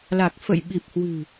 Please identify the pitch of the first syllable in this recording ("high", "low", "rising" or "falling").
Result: low